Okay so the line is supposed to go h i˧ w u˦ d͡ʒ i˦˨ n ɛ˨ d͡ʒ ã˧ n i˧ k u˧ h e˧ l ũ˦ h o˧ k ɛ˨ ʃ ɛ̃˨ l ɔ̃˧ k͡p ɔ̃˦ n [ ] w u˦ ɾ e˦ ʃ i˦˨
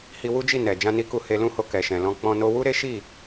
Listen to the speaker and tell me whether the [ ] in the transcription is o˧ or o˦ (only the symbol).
o˦